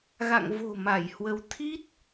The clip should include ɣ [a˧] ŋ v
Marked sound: incorrect: a̰˧˨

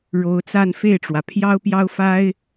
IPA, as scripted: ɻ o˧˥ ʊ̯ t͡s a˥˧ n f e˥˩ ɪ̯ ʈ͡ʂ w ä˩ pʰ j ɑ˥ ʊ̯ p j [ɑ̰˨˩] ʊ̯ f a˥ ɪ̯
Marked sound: incorrect: ɑ˥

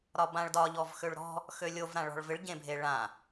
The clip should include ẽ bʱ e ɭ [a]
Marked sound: incorrect: ã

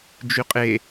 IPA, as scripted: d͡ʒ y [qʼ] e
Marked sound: correct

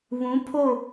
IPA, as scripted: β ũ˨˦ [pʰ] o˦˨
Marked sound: correct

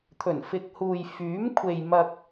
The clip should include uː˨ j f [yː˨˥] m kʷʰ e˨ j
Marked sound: correct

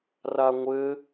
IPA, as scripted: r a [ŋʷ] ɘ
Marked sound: correct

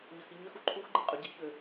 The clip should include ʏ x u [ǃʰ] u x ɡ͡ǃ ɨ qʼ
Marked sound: correct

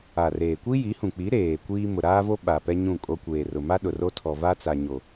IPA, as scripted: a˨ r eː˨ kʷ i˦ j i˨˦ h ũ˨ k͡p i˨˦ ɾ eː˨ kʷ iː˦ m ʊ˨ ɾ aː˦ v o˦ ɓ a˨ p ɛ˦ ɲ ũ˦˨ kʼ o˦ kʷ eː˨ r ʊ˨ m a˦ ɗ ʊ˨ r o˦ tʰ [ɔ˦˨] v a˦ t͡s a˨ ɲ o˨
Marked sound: incorrect: ɔ˨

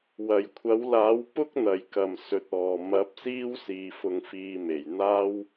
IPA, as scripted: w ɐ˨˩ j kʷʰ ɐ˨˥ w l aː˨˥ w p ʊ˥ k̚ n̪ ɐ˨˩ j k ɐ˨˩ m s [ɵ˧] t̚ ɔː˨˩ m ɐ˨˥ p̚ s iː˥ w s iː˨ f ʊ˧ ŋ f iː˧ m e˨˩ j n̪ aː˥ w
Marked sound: incorrect: ɵ˨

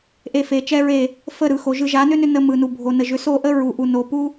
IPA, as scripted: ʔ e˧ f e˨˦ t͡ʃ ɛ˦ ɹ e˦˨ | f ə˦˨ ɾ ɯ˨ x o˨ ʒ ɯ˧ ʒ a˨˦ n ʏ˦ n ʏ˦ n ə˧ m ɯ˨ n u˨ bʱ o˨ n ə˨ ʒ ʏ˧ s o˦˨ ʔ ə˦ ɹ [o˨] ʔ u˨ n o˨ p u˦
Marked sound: incorrect: u˨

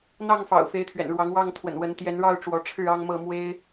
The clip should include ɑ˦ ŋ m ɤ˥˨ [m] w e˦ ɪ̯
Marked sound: correct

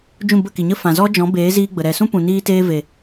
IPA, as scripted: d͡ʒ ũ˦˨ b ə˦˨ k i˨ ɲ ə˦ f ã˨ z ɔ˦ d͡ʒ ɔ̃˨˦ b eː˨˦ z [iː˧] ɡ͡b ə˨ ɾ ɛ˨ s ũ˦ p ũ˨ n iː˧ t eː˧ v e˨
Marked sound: correct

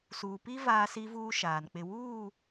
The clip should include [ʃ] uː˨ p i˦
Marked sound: incorrect: s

